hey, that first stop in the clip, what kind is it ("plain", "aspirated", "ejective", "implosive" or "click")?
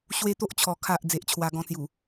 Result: plain